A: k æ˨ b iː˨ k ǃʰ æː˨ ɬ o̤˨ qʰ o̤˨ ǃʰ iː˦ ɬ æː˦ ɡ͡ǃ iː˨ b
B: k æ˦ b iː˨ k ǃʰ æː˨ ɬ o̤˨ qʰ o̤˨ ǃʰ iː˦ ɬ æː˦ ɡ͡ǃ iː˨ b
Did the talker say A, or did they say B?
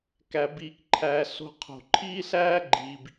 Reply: A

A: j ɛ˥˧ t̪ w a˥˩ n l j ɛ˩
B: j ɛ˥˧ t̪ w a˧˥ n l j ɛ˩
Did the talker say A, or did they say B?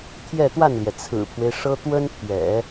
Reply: A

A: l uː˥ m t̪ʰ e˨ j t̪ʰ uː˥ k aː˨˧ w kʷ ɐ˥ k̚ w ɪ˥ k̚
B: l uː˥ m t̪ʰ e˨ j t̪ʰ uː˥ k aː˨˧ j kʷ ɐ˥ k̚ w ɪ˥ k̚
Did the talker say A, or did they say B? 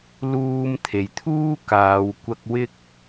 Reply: A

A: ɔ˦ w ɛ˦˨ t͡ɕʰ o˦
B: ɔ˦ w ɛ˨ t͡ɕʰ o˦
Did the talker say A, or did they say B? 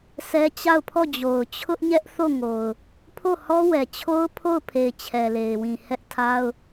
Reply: B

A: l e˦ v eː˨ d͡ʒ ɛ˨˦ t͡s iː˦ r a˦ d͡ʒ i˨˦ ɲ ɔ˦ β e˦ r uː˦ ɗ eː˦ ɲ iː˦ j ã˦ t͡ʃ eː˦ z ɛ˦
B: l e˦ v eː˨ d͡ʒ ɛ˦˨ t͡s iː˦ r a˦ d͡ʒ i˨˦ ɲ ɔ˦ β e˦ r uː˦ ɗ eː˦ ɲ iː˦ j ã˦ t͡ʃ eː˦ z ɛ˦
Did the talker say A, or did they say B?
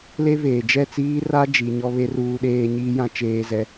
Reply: B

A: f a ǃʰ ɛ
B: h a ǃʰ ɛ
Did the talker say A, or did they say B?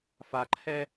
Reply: A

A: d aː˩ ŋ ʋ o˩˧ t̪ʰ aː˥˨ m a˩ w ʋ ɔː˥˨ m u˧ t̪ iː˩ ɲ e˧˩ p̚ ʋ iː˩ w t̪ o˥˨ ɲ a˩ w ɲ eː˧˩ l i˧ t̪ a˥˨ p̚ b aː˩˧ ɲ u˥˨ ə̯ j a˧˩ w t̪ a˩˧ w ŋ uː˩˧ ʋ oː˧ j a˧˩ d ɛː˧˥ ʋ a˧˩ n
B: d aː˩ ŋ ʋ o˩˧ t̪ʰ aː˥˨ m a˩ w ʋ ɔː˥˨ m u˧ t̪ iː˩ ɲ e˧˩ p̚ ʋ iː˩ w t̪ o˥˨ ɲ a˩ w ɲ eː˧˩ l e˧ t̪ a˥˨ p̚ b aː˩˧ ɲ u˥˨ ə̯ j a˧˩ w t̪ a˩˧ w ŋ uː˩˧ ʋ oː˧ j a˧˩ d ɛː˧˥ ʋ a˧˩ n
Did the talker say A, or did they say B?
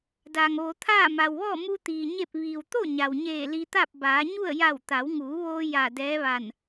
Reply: A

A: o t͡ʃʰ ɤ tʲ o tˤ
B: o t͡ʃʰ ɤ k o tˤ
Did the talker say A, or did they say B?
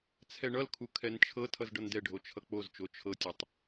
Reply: A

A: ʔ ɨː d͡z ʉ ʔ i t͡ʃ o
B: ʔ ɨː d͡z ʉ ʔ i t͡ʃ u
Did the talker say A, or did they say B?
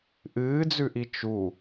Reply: B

